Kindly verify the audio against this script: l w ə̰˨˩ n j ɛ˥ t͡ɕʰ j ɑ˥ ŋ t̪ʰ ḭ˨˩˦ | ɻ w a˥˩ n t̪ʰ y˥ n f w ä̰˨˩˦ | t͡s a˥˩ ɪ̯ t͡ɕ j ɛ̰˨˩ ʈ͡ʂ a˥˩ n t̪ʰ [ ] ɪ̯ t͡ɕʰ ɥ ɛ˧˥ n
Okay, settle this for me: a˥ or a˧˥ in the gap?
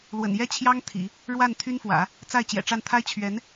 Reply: a˥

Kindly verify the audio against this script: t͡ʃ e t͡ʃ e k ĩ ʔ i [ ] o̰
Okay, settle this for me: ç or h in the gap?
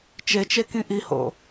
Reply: h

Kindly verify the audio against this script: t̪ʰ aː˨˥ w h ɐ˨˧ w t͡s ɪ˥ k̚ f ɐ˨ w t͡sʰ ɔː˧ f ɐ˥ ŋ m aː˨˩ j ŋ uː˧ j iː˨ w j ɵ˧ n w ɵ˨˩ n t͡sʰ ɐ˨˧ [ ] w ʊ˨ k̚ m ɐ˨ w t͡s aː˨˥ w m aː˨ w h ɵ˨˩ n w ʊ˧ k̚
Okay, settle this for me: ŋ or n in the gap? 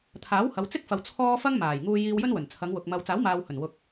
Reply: ŋ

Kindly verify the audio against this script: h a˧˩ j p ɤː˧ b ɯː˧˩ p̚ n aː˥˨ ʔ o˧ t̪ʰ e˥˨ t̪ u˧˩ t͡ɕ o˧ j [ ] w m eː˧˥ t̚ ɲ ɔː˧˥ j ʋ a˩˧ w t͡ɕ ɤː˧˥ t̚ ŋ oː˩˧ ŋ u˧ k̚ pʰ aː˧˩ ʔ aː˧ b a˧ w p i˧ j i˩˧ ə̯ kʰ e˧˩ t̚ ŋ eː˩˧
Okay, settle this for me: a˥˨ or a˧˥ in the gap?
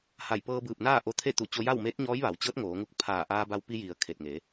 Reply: a˥˨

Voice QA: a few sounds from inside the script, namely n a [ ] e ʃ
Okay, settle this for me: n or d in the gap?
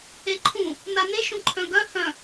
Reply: n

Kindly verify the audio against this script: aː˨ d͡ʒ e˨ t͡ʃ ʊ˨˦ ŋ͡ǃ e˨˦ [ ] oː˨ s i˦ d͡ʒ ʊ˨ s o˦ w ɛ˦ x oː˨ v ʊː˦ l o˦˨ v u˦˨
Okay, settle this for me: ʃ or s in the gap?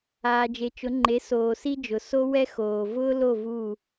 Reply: s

